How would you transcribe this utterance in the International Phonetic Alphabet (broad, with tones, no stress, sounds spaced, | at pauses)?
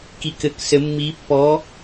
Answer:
k i˧˥˧ k ɘ˧˥ k s ɘ˧˥ mː i˧˥ pː ɔ˧˥